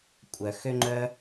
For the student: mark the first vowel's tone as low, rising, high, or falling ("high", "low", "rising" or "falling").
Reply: low